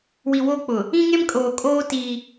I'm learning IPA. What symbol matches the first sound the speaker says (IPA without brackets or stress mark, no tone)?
w